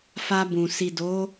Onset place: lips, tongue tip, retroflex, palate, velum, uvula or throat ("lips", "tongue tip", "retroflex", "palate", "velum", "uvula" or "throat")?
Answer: lips